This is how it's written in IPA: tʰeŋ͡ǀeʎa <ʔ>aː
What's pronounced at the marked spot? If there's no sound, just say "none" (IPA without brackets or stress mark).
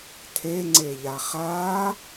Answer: χ